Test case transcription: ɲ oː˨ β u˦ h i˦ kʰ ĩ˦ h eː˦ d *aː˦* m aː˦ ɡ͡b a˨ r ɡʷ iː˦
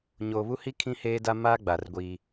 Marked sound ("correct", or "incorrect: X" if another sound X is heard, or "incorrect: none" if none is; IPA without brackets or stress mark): incorrect: a˦